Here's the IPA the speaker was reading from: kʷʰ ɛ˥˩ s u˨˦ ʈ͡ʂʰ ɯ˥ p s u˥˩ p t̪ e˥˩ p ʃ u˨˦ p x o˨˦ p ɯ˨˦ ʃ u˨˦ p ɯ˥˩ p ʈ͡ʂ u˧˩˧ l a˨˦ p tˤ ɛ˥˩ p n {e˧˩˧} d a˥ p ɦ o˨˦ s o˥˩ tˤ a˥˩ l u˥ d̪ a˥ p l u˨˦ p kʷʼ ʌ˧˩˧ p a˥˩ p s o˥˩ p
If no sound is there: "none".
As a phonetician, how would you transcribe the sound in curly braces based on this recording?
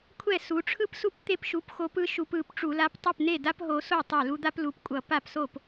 e˥˩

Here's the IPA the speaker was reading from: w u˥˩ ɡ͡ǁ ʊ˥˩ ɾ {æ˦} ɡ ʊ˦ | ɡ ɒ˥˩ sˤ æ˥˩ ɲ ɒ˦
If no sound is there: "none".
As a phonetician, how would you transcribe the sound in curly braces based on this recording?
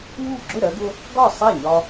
ɜ˦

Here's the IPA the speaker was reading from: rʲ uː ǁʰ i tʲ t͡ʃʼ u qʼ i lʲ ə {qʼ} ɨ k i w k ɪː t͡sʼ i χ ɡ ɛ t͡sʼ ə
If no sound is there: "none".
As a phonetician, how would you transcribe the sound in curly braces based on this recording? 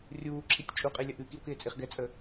ʔ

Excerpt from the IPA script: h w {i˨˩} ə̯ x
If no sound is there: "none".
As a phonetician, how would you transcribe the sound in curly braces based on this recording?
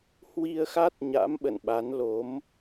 i˧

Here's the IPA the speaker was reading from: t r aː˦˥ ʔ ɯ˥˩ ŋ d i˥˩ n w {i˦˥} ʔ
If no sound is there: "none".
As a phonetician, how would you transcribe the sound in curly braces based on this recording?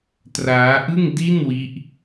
i˦˥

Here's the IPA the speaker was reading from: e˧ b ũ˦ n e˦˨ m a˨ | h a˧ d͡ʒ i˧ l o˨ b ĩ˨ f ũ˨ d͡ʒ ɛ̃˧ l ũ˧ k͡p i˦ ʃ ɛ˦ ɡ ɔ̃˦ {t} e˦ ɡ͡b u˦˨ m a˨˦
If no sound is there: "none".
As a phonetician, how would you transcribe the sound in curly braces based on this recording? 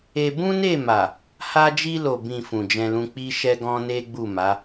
n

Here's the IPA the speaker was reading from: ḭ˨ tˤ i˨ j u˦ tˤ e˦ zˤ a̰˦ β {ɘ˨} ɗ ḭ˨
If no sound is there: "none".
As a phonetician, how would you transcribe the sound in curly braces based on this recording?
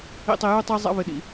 ɘ˨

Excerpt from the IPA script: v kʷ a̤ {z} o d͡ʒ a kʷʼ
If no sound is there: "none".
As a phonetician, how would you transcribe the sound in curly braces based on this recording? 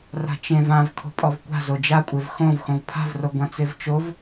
z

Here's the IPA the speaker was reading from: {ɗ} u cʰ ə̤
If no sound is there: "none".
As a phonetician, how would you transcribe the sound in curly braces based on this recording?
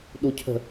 ɗ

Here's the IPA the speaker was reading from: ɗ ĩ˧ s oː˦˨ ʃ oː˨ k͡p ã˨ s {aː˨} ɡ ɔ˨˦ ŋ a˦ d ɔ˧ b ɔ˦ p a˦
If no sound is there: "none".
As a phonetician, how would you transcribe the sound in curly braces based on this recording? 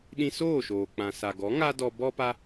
a˨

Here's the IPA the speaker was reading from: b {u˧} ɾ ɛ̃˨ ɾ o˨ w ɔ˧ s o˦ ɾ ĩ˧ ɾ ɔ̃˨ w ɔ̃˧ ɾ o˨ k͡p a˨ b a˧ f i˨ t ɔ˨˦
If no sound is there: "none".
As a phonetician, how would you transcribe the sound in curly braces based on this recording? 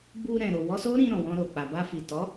u˧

